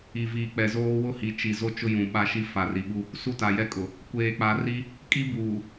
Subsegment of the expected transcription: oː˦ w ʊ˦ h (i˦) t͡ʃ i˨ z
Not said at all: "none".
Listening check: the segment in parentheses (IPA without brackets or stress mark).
i˨